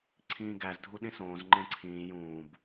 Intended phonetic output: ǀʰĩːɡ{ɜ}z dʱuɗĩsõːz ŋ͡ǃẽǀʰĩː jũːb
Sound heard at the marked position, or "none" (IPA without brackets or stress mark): æ